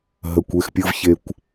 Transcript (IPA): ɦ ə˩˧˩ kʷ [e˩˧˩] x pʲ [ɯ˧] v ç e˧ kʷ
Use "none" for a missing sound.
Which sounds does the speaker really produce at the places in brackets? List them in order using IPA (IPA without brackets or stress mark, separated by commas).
e˩˧˩, ɯ˧